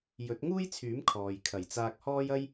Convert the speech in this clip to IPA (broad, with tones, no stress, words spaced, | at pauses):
jɵ˨˥t̚ŋuː˥jt͡sʰyː˨˥m kʰɔː˨jkʰɐ˨˩jt͡saː˧k̚ hɔː˥jɐ˥j